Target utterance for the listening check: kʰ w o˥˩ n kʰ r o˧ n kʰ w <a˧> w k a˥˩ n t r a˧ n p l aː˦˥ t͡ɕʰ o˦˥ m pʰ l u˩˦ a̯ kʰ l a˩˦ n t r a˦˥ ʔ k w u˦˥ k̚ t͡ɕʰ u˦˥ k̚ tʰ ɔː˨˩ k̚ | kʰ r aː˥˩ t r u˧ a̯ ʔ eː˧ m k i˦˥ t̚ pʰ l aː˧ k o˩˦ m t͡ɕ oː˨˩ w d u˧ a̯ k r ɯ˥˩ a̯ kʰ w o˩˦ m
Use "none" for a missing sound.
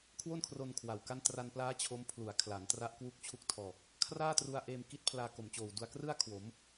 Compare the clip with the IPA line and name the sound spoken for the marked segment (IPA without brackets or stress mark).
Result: a˨˩